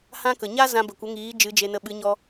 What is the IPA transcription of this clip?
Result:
h ã˦ k ə˨ ɲ a˦ z ã˧ b ə˨ kʷ ə˨˦ ŋ iː˨˦ d͡ʒ ɨ˨˦ d͡ʒ e˧ n ə˧ ɓ ɨ˨˦ ɲ ɔ˧

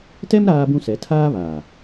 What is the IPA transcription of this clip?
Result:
t ɛ˦ m ɾ aː˦ b ũ˦ s ɛ˨˦ tʰ aː˦ β aː˨

